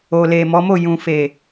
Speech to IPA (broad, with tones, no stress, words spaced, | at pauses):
o˨le˨mɔ˨˦ mo˦˨jũ˨fe˨